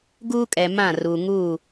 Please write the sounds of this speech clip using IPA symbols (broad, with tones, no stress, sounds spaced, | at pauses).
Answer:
ɡ uː˦ kʼ ɛ˨ m ã˦˨ r uː˨ ŋ uː˦˨